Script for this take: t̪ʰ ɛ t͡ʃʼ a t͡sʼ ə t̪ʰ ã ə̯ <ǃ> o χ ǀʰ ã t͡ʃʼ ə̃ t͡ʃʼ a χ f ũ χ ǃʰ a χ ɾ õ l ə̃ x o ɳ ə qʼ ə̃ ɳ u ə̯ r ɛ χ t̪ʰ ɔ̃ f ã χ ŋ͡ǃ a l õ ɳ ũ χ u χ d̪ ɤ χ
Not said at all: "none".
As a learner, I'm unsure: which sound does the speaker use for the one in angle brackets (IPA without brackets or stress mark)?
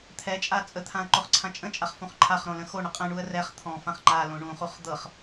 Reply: ǃ